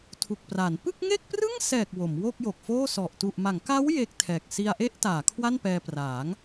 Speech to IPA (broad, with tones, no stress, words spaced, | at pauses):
tʰu˨˩k̚pra˩˦n pɯ˥˩k̚ŋe˥˩k̚prɯ˥˩ŋsɛː˨˩k̚ wo˩˦mwo˥˩k̚jo˨˩k̚foː˥˩ sɔ˨˩ʔ tu˨˩ʔma˩˦ŋka˦˥w je˦˥k̚tʰɛː˨˩k̚ si˧a̯ʔe˥˩ʔtaː˩˦ kʰwa˥˩npɛː˧praː˩˦ŋ